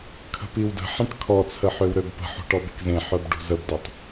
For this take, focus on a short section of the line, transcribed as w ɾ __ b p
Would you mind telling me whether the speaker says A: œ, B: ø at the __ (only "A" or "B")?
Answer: B